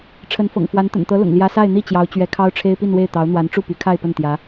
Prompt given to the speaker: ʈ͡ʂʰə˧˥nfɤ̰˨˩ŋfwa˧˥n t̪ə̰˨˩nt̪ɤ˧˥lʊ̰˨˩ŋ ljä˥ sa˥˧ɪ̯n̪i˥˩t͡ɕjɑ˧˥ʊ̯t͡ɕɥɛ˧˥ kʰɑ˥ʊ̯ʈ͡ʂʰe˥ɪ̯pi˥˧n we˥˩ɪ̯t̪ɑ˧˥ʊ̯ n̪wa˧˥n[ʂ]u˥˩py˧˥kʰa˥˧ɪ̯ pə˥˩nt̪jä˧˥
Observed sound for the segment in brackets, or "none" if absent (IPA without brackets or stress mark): ʈ͡ʂ